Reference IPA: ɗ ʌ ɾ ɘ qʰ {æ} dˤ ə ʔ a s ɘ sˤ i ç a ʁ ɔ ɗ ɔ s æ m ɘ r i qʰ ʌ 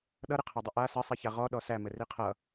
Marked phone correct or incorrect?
correct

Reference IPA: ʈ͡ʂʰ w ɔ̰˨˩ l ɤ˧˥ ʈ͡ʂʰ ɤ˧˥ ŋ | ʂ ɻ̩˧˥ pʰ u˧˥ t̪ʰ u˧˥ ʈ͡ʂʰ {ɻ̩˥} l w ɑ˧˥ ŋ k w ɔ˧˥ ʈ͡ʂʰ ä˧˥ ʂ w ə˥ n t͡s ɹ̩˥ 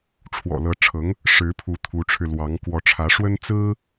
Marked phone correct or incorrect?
incorrect: ɻ̩˧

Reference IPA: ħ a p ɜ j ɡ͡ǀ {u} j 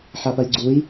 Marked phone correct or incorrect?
correct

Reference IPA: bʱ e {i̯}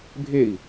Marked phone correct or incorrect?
correct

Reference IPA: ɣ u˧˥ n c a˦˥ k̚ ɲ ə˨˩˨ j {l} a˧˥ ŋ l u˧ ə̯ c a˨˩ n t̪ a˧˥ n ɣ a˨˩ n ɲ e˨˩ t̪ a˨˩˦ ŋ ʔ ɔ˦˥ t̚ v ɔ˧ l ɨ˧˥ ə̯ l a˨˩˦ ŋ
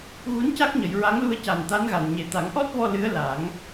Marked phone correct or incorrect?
incorrect: ɹ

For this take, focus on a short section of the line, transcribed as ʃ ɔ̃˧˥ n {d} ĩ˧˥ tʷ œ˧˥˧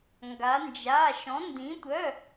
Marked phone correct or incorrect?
correct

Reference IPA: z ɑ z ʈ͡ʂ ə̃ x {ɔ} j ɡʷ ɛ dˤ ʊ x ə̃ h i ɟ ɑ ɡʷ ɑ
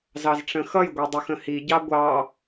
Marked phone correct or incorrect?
incorrect: ʌ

